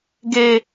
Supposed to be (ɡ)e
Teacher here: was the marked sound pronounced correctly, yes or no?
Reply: yes